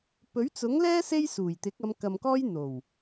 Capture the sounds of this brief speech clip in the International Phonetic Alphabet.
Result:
p ɵ˨˥ ɥ t͡s ʊ˨˥ ŋ l ɛː˥ s e˥ j s uː˨˩ j t̪ ɪ˨˥ k̚ ɐ˨˧ m k ɐ˨ m k ɔː˥ j n̪ o˨˩ w

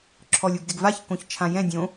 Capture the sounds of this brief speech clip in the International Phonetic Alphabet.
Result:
ǁʰ ɔ lʲ u ɡ d ɪ ɡ v a ç k õ ç t͡ʃʰ ã j ɛ̃ dʲ õ

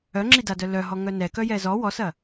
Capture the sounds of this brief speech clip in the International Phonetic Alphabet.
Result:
œ ŋ͡ǁ i d a d œ l œ ɦ ɔ ŋ œ n ɛ k œ j ɛ z ɔ w ɔ s ɐ

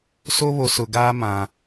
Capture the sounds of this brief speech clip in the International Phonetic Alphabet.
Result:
s o˦ β o˨ s ʊ˨ ɡ aː˦ m ã˨

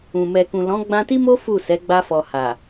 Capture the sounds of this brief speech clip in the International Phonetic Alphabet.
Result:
ũ˨ m ɛ˨ k ũ˨ l ɔ̃˨˦ ɡ͡b ã˧ t i˦ m o˦ f u˦˨ s ɛ˨˦ ɡ͡b a˧ f ɔ˨ h a˨

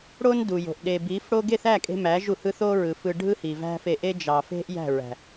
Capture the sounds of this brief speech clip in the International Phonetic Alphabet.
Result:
ɽ o˦ n d u˨ j o̤˨ ʔ ɗ e˨ b i˨˦ f ɽ o˦ ɡ e˦˨ θ æ˦˨ kʼ e̤˧ m æ˨˦ ʒ u˨ h ɯ˦ θ o˦ ɹ ɯ˨ f ɯ˧ ɖʱ ɯ˦ h i˨ v æ̤˦ f e˧ ʔ e˦ d͡ʒ ɑ˧ f e̤˦ ʔ j æ̤˦˨ ɹ æ̤˨

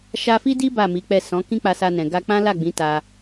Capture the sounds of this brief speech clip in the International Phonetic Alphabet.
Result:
ʃ a˧ f i˦ d i˦ b a˦˨ m i˨˦ k͡p ɛ˦˨ s ɔ̃˨˦ k ĩ˦ k͡p a˧ s a˧ n ɛ̃˨ ɡ a˧ k͡p ã˦ l a˦˨ ɡ͡b ĩ˨˦ t a˧

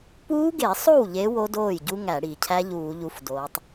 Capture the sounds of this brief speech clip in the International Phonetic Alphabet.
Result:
p uː˦˥ ɡ e˧˩˧ sˤ o˥˩ w ʎ e˨˦ w o˦˥ d oː˥˩ j ɟ u˦˥ ŋ æ˧˩˧ ɽ iː˩ cʰ æ˦˥ ʎ uː˧˩˧ ʎ u˨˦ f d oː˨˦ tˤ

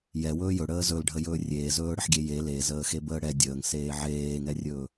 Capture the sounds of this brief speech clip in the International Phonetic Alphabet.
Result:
j ɛ w ɵː j ɵ ɽ əː z ɵ l ɖʱ ə j ɵː rʲ eː z ɵː ɽ ə ħ ɡʲ e j e l e z əː x e b əː ɽ ɛ dʲ əː ŋ s eː ʕ eː ŋ ɛ rʲ ɵː

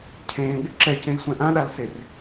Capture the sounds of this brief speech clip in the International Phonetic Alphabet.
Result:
cʰ ẽː ɠ ɪ ǁ ɛ c ẽ j sʷ ɛ̃ ʔ ã ɗ a l s e r

